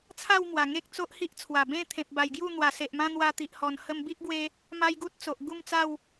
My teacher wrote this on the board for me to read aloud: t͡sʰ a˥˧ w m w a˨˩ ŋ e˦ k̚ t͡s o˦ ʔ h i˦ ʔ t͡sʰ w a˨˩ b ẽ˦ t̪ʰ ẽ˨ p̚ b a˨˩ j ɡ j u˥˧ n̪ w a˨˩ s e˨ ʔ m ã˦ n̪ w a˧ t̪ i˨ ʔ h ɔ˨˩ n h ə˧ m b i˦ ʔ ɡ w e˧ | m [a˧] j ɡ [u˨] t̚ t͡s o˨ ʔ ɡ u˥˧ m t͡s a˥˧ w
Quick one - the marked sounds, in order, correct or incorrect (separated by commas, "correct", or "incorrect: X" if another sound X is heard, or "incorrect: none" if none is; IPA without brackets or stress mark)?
incorrect: a˦, incorrect: u˦